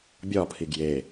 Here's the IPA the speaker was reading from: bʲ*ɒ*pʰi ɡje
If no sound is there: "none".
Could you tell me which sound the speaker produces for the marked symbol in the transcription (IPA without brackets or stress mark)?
ɒ